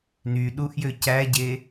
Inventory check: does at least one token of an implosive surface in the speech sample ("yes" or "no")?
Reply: yes